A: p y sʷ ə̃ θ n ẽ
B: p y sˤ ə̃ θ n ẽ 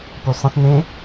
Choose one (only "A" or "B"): B